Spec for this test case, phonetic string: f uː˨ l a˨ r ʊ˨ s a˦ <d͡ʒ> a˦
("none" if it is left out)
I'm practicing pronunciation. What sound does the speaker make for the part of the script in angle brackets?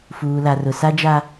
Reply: d͡ʒ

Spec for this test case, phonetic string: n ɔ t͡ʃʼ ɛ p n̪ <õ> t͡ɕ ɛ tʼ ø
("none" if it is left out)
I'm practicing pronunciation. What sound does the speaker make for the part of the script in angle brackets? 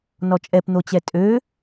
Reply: o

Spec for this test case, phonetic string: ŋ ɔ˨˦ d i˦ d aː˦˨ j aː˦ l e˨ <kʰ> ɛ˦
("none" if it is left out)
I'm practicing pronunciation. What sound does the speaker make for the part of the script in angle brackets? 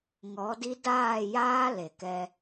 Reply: k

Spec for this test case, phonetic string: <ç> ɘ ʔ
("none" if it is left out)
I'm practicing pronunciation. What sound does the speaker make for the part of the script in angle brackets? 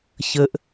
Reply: ç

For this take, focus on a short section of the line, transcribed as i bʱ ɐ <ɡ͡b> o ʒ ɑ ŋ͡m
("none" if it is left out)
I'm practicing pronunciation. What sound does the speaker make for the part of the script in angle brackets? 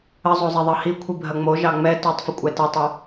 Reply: ŋ͡m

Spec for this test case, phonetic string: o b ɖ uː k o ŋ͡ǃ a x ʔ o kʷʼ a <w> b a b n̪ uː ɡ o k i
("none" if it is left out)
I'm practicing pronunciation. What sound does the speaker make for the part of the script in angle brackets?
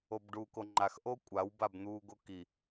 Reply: w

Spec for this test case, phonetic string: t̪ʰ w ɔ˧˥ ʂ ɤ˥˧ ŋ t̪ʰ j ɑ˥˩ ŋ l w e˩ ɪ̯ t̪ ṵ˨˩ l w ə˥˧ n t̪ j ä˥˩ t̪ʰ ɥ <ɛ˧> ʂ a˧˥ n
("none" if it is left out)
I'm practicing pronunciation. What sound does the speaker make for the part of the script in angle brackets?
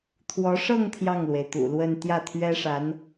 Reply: ɛ˥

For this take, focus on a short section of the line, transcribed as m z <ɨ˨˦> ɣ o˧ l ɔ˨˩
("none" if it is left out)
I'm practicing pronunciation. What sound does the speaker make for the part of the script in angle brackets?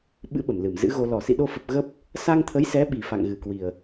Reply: ɨ̰˧˥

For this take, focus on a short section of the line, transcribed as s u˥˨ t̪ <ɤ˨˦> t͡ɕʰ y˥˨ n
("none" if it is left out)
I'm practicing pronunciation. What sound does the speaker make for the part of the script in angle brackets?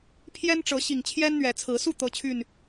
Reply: ɤ˦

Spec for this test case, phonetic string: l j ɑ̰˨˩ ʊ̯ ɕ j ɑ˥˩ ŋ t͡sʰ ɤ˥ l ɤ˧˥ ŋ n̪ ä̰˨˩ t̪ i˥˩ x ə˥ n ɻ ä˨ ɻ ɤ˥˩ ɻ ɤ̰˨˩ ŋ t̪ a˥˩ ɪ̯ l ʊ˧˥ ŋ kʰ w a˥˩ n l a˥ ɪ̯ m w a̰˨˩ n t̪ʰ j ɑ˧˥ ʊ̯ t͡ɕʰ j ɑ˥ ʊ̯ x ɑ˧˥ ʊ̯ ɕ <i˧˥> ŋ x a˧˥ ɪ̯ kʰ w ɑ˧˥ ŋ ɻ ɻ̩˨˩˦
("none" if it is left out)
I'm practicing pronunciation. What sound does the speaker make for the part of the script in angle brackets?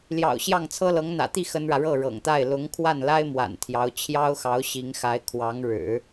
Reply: i˧˥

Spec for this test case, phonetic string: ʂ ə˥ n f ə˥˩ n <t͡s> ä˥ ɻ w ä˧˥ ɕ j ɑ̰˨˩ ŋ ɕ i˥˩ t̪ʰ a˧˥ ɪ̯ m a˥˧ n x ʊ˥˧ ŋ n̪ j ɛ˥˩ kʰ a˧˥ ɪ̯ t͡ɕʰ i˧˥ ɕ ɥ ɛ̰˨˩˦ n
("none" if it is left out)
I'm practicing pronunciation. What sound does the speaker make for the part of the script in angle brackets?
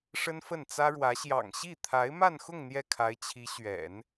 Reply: t͡s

